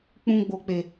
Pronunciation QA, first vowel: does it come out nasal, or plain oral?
nasal